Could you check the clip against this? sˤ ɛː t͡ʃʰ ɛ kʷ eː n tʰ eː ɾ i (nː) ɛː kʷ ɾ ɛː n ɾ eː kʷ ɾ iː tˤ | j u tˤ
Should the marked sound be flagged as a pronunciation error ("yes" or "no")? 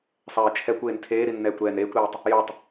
no